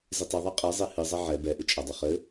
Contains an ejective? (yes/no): yes